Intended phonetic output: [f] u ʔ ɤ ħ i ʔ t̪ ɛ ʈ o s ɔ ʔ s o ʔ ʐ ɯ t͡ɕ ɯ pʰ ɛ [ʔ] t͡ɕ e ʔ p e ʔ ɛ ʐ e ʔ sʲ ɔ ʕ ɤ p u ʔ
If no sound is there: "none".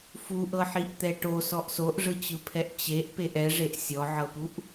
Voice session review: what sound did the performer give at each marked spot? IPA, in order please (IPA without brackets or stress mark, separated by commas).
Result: f, ʔ